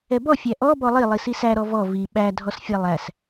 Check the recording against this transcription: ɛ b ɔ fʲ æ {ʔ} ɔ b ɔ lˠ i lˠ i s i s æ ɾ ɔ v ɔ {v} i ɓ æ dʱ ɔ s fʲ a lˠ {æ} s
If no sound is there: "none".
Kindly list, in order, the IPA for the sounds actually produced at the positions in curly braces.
ʔ, v, æ

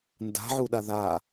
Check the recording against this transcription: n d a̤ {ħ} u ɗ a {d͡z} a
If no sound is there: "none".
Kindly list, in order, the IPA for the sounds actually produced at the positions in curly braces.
ʕ, ð

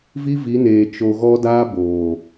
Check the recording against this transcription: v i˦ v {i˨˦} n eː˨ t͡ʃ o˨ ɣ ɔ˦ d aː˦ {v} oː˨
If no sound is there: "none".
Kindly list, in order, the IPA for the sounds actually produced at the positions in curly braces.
i˨˦, b

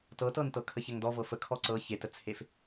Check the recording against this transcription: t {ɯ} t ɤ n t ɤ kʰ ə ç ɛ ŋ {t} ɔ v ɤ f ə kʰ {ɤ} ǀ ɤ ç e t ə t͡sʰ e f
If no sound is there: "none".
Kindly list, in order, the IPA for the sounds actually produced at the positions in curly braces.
ɤ, d, ɔ

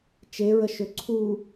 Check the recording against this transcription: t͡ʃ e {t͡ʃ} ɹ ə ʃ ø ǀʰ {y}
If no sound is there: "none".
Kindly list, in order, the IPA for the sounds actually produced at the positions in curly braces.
none, u

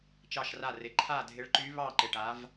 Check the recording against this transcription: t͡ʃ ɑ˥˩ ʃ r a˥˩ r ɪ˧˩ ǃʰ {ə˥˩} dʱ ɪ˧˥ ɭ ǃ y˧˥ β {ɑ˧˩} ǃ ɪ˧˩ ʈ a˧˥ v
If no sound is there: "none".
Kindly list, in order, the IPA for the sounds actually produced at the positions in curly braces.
a˥˩, ɑ˥˩

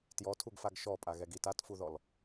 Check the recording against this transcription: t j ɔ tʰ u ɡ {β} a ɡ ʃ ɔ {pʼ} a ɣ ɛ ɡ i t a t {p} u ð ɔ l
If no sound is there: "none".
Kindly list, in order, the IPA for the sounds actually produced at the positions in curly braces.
f, pʼ, f

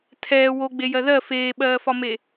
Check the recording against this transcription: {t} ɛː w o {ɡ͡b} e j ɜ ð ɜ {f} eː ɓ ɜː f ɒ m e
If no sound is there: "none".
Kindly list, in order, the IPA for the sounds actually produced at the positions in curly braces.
tʰ, ɡ͡b, f

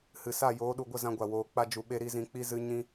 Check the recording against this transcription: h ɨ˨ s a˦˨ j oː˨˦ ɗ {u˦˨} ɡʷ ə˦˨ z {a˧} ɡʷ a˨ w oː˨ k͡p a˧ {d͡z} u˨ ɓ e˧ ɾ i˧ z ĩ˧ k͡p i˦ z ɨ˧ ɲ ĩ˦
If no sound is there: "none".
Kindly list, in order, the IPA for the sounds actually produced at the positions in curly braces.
u˨, ã˧, d͡ʒ

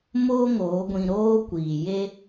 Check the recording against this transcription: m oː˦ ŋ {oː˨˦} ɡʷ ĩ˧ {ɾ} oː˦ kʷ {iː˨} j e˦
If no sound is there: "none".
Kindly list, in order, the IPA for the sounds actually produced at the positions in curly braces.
oː˨˦, ɾ, iː˨

